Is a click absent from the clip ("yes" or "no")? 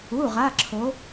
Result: no